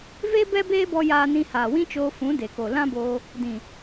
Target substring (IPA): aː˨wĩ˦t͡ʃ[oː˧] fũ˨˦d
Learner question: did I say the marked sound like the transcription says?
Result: yes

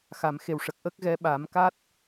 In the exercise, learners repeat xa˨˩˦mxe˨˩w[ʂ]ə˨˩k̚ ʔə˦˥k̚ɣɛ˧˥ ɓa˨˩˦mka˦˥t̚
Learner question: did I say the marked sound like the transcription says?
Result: yes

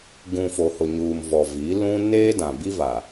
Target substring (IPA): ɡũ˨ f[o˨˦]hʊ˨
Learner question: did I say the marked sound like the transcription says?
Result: no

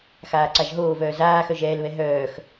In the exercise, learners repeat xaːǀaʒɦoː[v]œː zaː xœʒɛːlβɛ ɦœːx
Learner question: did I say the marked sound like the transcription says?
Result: yes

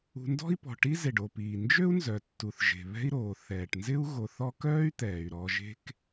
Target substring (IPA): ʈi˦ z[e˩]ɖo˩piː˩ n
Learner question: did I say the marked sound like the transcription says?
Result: yes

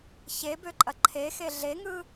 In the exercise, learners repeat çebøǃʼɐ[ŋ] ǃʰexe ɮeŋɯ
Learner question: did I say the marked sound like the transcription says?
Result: no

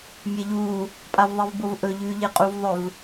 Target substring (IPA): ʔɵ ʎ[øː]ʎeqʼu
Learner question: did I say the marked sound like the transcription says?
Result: no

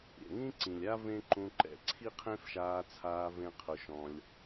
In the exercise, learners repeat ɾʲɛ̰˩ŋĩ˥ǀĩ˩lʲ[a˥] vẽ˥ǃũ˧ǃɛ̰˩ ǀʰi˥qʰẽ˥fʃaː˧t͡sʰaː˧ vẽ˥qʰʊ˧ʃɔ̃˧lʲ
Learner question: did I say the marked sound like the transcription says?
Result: yes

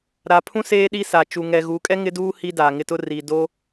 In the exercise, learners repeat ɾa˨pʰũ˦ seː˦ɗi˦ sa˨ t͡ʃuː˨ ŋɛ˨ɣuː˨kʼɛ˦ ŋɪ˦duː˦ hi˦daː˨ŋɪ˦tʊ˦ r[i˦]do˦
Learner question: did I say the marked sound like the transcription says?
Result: no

